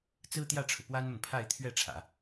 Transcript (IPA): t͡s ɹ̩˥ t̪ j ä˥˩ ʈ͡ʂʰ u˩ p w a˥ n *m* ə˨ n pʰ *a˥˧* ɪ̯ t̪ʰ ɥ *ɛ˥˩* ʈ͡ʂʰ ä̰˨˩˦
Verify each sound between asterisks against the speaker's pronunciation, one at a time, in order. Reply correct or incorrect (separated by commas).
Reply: correct, correct, correct